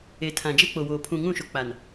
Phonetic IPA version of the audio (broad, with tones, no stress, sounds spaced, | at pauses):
e˨ tʰ ã˨ d͡ʒ e˦ k͡p o˨ w oː˨ pʰ ũ˨ ŋ ũ˦˨ ʃ o˨ k͡p a˨ n